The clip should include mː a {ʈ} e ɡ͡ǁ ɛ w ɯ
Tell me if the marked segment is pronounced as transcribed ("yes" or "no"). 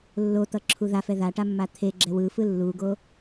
no